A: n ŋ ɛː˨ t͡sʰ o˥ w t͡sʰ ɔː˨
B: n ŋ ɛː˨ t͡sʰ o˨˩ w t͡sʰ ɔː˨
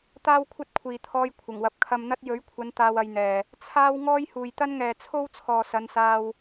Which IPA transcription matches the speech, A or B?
A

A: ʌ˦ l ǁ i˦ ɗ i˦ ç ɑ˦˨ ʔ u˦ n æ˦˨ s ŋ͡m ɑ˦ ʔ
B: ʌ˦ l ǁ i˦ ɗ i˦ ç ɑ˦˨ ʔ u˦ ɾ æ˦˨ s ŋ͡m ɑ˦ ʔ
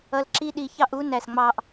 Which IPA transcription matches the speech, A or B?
A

